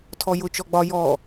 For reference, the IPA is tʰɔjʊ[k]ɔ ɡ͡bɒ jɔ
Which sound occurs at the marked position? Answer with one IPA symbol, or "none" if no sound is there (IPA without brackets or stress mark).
t͡ʃ